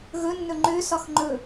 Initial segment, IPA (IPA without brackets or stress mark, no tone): ɣ